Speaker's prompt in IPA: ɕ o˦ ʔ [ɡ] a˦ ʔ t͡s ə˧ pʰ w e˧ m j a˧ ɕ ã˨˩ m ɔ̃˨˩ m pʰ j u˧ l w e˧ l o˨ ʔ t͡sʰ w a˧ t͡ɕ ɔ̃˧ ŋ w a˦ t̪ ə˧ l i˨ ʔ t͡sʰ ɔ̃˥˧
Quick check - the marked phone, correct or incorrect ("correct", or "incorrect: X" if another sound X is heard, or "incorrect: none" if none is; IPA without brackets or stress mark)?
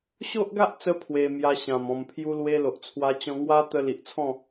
correct